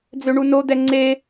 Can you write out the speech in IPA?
d͡z ø ɳ u n o d̪ ɛ ŋ͡ǀ e

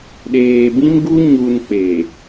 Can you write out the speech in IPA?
ɗ eː˨ b ĩ˦ m ɡ u˦ ɲ u˨ n k͡p e˨

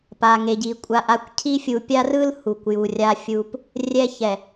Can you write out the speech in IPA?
p a˨ ŋ e˨ ɟ i˨ kʷʼ a˨ ʔ a˨ kʷ cʰ i˦ fʲ u˨ pʲ a˦ r ɯ˦ l h u˨ kʷ j u˨ rʲ a˦ fʲ u˦ p | rʲ ɛ˦ ç ɛ˨

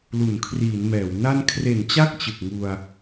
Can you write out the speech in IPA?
l u˩˦ n kʰ r iː˩˦ n m ɛː˩˦ w n a˧ n kʰ r e˩˦ n t͡ɕ a˥˩ k̚ t͡ɕ ɯ˨˩ k̚ ŋ u˧ a̯

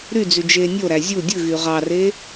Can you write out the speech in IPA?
ɾ y d͡z y d͡ʒ eː nʲ o ɾ æ zʲ u dʲ ɯ ɣ y ʁ ɑ r e

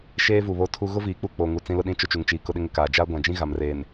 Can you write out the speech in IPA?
ʃ eː˦ v u˨ β o˦ tʰ u˦ ɣ ʊ˦ v iː˨ k͡p u˦ k͡p o˨ ŋ u˨ t͡s ĩ˦ l ʊ˦ ɗ ĩ˦ t͡ʃ ʊ˦ t͡ʃ u˨ ŋ t͡ʃ iː˨ k ʊ˦ ɗ ɪ˦ ŋ ɪ˦ k aː˨ d͡ʒ aː˦ ɡʷ ã˨ d͡ʒ ĩ˦ ɣ a˨ m r eː˨ n

